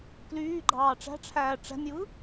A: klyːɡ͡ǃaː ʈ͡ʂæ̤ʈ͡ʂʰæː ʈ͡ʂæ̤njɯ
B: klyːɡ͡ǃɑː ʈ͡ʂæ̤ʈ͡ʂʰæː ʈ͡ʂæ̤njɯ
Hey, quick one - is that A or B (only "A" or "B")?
B